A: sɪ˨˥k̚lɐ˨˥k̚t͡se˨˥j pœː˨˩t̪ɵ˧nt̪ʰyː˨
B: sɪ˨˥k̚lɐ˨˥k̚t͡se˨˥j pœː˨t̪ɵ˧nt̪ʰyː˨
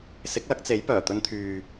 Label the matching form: A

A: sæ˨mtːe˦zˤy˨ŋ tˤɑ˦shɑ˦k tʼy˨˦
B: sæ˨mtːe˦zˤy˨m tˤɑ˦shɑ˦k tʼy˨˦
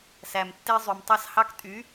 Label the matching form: B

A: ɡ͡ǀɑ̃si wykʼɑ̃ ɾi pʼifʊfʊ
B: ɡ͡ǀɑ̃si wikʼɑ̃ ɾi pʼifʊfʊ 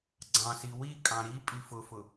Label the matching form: B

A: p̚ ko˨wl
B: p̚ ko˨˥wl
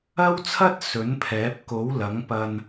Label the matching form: B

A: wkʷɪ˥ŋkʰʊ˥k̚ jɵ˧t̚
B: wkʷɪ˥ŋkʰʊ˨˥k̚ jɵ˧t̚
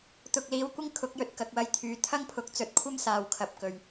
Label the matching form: B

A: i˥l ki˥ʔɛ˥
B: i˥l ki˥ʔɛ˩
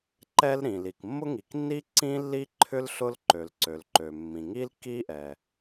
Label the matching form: B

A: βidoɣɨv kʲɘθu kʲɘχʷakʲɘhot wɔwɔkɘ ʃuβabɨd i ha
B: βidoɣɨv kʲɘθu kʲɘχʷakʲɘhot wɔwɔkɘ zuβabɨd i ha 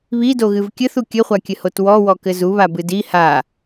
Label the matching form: B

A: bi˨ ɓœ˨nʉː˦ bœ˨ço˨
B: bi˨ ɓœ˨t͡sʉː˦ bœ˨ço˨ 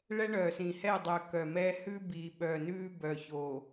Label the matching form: A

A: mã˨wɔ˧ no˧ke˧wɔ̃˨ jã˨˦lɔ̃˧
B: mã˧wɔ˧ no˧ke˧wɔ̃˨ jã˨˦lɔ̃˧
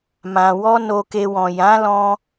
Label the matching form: A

